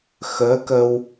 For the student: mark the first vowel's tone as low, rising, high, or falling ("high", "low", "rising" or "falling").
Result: rising